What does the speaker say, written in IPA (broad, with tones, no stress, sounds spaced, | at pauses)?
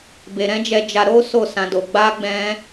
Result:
b e˧ ɾ ɛ̃˦ d͡ʒ ɛ˧ d͡ʒ a˧ ɾ o˦ s o˦˨ s ã˧ d o˧ ɡ͡b a˦ ɡ͡b ɛ̃˦